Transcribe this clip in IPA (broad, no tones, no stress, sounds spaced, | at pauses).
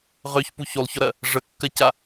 ʁ ø ç p u ç u lˠ ç ɔ ɾ ɜ | ʐ ə kː ɜ c a